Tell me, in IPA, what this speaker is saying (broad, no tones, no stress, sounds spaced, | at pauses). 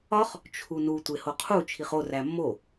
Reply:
ɒ χ | t͡ʃʰ u n u tʷ e h o qʰ u t͡ʃʰ i χ o r æ mː o